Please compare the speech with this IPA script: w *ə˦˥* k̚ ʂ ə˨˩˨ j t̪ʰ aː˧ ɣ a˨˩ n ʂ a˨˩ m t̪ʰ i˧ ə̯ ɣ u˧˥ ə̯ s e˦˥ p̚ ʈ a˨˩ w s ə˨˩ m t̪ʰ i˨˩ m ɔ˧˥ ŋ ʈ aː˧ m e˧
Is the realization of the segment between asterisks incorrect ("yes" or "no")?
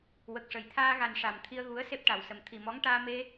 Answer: yes